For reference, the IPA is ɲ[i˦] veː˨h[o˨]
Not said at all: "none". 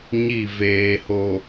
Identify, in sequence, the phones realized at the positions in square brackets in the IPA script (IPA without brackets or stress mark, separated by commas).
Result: i˦˨, o˨